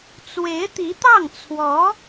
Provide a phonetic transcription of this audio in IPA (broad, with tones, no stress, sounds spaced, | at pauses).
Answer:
t͡s w e˧˥ ɪ̯ t̪ i˧˥ t̪ ɑ˥˩ ŋ t͡sʰ w ɔ˧˥